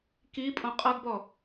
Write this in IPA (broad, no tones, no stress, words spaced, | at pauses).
kipʼõ qʼʌɡbɔ